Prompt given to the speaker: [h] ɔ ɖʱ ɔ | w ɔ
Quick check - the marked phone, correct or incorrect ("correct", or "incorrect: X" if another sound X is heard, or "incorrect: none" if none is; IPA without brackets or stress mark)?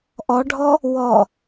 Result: incorrect: ʔ